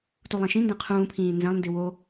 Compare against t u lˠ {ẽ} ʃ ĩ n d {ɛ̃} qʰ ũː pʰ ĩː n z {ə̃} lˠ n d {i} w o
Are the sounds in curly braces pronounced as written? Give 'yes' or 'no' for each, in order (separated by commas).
yes, no, no, yes